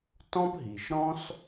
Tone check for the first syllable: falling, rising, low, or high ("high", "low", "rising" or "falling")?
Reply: high